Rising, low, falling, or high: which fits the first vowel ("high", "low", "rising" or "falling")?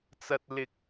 high